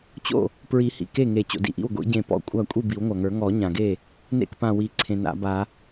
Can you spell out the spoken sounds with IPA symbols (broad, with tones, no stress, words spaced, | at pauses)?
t͡ɕo̰˥˩ | pɹi˨˩˦hḭ˩ ke˥˩ŋe˨˩˦ t͡ɕo̰˩dḭ˧˩ʔḭ˥˩w ɡʷḭ˨˩˦ɟẽ˧˩ pɔ̰˧˩kʷʼa˥˩ kʷʼi˥˩bi˨˩˦wŋʷa˩ŋə˞˨˩˦ ŋɔ˨˩˦ɲã˩ɡe˥˩ | nḛ˥˩kpã˧˩wi˨˩˦ ǀʰẽ˩na̰˨˩˦ba˨˩˦